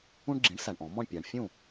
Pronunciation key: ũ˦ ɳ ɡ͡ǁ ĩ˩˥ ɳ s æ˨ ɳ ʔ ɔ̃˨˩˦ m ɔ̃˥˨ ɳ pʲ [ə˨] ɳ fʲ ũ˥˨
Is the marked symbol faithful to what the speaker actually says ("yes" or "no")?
no